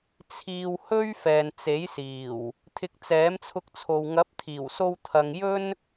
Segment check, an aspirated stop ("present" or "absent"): present